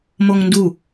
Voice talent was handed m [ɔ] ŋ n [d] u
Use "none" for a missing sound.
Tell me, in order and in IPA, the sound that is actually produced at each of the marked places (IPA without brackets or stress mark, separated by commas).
o, d